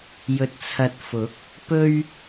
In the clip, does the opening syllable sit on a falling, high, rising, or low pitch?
low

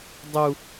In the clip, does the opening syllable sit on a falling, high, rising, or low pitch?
high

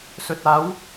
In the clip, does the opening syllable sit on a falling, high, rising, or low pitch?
low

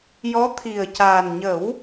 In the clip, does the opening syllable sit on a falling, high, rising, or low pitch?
rising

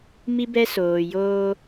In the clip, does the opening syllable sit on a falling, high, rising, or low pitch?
high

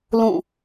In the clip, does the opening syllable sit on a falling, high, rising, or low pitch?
falling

